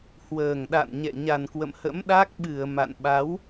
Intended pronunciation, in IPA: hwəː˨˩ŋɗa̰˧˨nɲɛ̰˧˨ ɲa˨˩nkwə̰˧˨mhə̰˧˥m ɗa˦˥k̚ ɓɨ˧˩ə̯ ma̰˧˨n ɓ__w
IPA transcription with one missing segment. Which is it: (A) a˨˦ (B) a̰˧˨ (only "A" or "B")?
A